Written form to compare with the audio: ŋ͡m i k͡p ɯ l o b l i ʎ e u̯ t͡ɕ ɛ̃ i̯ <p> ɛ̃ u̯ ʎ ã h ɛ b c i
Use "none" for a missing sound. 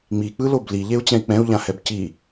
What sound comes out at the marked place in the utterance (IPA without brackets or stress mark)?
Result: k͡p